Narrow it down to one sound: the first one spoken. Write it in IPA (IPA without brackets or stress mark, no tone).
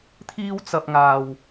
t̪ʰ